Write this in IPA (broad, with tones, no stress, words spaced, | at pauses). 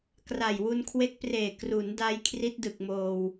kra˨˩jwu˧nkʰwe˦˥k̚preː˨˩ kru˩˦n da˦˥jkʰri˦˥t̚dɯ˨˩k̚ moː˧w